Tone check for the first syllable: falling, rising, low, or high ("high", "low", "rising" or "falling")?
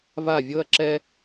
falling